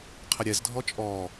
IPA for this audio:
qʰ ə ɾʲ ɛ z dʱ ɔ t͡ʃʼ ɔ

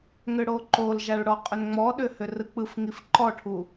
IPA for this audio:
ŋ ʏ ɽ o ǃ o l ʒ a ɭ ɽ ɔ qʼ ʏ n ŋ͡m ɔ ɗ ʏ h ʏ r ɯ k͡p ɯ f ŋ i f ǃ ɔ ʈʰ u

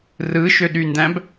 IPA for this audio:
r ɯ ʃ ø ɗ y n d æ̃ b

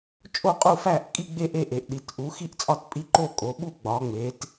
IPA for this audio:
t͡ʃʼ o˦˨ qʼ u˦˨ f æ˦˨ ʔ kʼ i˦˨ ɡ͡b e˦˨ ʔ e˦˨ ʔ e˩˧ ʔ ɗ i˩˧ t ʔ u˩˧ x i˦˨ ʔ t͡sʼ ɒ˦˨ t pʼ i˦˨ ǃ o˦˨ kʼ o˩˧ ɓ u˦˨ ɡ͡b ɒ˩˧ ŋ͡m e˩˧ t

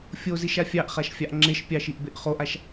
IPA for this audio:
fʲ o z i ʃ a fʲ ɑ ʔ χ a ʃ fʲ ɑ ʔ ŋ͡ǁ e ʃ pʲ ɑ ʃ i ʔ b e ʔ χ o ʔ a ʃ

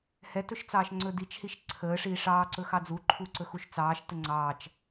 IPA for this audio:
h ɛ t ɵ ʃ t͡s ɑː ʃ ŋ͡ǀ ɵ d i t͡ʃ h i ʃ ǀʰ əː ʂ iː ʂ ɑː ǀ ɵ x ɑ d͡z u ǃʰ u ǀ ɵ x u ʃ t͡s ɑː ʃ t ə ŋ͡ǀ ɑː t͡ʃ

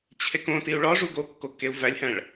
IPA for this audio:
t͡ɕʰ e k õ t i u̯ ɭ ɒ ʐ u ɡ o kː o kː e u̯ v æ lʲ h æ̃ ɭ

